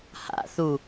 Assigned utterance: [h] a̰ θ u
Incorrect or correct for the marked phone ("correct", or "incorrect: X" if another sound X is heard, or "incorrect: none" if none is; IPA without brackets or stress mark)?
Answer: correct